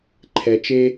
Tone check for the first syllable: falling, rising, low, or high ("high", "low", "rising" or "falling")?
low